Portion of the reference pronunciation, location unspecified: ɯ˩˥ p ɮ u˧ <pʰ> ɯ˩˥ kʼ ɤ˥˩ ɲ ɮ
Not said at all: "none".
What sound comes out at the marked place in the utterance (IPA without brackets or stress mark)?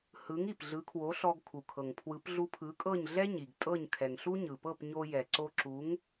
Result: pʰ